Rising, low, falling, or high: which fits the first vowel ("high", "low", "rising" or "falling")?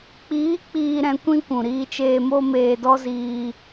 rising